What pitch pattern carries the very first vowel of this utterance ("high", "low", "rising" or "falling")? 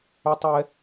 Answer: high